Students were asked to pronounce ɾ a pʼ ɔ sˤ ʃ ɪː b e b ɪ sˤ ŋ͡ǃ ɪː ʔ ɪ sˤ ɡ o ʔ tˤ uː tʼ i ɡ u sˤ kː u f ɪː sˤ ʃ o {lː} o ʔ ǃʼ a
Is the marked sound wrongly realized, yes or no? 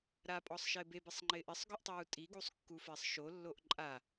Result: no